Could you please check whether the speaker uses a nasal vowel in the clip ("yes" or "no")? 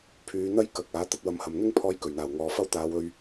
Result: no